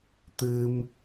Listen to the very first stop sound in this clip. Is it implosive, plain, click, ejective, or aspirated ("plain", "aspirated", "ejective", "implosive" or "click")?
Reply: plain